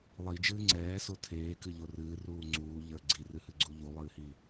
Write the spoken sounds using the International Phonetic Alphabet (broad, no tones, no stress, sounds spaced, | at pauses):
lˠ i d͡ʒ ɨː ŋ͡ǀ ɛː s o tʰ eː k ɨ ʎ o r ɨː r uː ŋ͡ǀ uː ʎ ə˞ ɡ͡ǀ i r ɨ h ɨ ɡ͡ǀ u ʎ u lˠ ɨː h i